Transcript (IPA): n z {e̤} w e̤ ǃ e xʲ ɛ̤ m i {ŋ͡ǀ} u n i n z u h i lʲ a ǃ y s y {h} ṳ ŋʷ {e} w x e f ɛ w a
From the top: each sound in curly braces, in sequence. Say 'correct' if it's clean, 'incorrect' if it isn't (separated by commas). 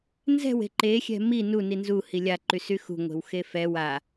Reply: incorrect, incorrect, incorrect, incorrect